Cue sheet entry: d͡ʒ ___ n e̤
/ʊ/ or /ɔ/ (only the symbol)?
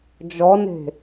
ɔ